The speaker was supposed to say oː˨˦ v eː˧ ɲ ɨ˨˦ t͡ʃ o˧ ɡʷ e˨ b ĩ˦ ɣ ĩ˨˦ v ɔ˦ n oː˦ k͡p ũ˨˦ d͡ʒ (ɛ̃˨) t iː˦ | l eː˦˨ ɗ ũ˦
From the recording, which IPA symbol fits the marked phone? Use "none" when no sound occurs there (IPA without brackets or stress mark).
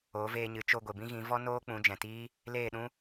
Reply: ɛ̃˨